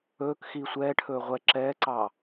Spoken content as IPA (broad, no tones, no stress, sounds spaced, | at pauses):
ɵː k x iː sʷ ɛː ʈʰ ɵː ʁʷ ɛ ǁ ɛː ǀ ɑ